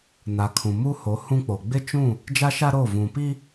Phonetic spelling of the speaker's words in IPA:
n a˨ kʰ ũ˨ m u˦ h o˨˦ h ũ˦ k͡p o˨ ɡ͡b ɪ˦ t͡ʃ ũ˦˨ | d͡ʒ a˦ ʃ a˦ ɾ o˦˨ v ũ˨ p i˦

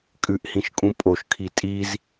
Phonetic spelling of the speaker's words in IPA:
kʼ ʉ ʔ h ĩ ʃ kʼ ũ pʼ o ʃ kʰ i tʼ i z

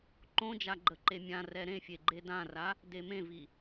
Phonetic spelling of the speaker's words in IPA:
ǃ õ d͡ʒ a ɡ͡ǃ ə ǃ e mʲ ã r ɛ ɾ ẽ fʲ e ɡ͡ǃ e d ã r a | d e m ẽ v i

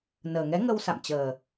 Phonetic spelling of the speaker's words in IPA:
n əː˨˩ ŋ ɛ˨˦ ŋ ə˧ w s a̰˧˨ m t͡ɕ əː˨˩

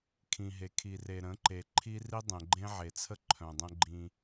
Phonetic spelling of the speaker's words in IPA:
kʰ ĩ˨ ɦ e˨ kʰ i˨ r e˨ ɾ ə̃˨˦ ǃ e˨ ǃʰ i˦ r i˦ dˤ ẽ˨ ɡ͡ǃ ẽ˦ ʕ e˨ t͡sʰ ə˦ ǃʰ œ̃˨ dˤ ə̃˦ ɡ͡ǃ ĩ˦

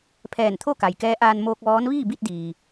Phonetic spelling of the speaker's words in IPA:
pʰ ɛː˧˩ n t̪ʰ o˥˨ k a˩ j k ɛː˧˥ ʔ aː˧ n m oː˧ k̚ ʋ ɔː˧˥ n ʋ iː˥˨ b i˥˨ t̚ d iː˩

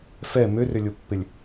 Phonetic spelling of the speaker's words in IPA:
f ɛ m ø r ʏ lʲ ʊ pː ɪ lʲ

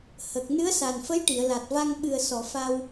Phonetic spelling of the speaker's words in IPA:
h ə˨˩ k̚ n ɨ˧˥ ə̯ s a˨˩ n f ə˧˥ j ʈ i˨˩˨ ə̯ l a˨˩ t̚ v a˧ ŋ ɓ ɨ˨˩ ə̯ s ɔ˨˩˨ f a˧ w

